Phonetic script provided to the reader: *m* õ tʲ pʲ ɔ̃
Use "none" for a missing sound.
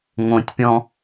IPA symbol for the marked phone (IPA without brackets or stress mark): ŋ